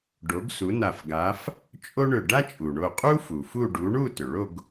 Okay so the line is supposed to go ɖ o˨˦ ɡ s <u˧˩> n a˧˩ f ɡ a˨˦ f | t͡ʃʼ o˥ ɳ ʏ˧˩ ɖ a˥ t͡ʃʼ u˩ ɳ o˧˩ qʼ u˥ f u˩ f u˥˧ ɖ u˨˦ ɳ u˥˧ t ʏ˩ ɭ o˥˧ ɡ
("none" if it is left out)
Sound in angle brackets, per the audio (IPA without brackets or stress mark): u˨˦